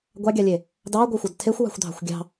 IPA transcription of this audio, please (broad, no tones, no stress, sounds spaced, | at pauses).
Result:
ɡʷ ɑ ɡʲ ɑ lʲ e | d ɑ ɡʷ ʌ xʷ ʌ d tʰ e xʷ w ɑ̤ xʷ dʱ ɑ̤ xʷ ɡʲ ɑ̤